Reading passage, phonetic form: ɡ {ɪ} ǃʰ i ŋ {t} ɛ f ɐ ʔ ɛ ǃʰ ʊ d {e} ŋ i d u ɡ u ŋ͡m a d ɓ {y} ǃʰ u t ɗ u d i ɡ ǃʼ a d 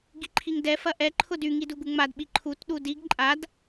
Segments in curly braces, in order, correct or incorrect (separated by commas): incorrect, incorrect, incorrect, incorrect